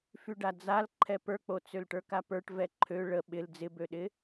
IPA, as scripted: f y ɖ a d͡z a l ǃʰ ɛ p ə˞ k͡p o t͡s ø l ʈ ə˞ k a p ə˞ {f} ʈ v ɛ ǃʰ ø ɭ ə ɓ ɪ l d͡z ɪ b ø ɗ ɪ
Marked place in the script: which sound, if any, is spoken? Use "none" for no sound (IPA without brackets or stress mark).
none